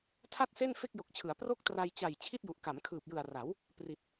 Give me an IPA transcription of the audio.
tʰ a˥˩ t̚ s e˥˩ n f e˥˩ k̚ j o˨˩ k̚ t͡ɕʰ ɯ˩˦ a̯ p r o˥˩ k̚ t r a˧ j t͡ɕ a˨˩ j t͡ɕʰ i˥˩ t̚ j u˨˩ ʔ k a˩˦ m kʰ ɯː˨˩ p̚ j ɯ˨˩ a̯ r a˩˦ w | p r i˨˩ t̚

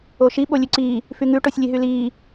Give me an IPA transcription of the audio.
o ʃ i ɓ o lʲ ʉ ǀ iː | f y ŋ ʉ ʈ o sʲ lʲ e ɦ y l iː

